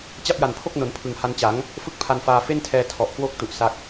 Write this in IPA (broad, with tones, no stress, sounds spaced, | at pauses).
t͡ɕ a˥˩ p̚ j a˨˩ n pʰ o˥˩ k̚ n o˩˦ n pʰ ɯ˨˩ ŋ h a˧ n t͡ɕ a˩˦ ŋ | f ɯ˥˩ k̚ pʰ a˧ n f aː˧ f e˥˩ n tʰ ɛː˧ tʰ ɔ˨˩ ʔ k w o˦˥ k̚ t u˨˩ ʔ s a˦˥ k̚